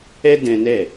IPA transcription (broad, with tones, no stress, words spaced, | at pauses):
ɛ˦dɛ̃˧nɛ˦˨